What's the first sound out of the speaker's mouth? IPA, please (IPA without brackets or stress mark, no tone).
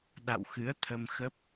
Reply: ɗ